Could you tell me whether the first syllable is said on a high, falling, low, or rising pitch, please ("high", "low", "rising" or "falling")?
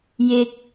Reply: low